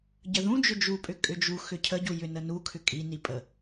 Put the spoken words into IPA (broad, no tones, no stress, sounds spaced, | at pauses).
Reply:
ɟ ə ð ũ d͡ʒ ʏ d͡ʒ u pʼ ʏ kʼ ʏ d͡ʒ u x ʏ cʰ ə ɟ u j ʏ n ə n u kʰ ʏ kʼ i n i pʼ ə